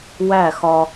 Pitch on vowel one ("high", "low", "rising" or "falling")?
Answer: falling